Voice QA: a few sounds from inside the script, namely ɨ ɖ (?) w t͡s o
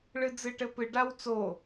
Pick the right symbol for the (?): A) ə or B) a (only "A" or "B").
B